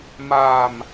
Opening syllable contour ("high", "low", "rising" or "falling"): low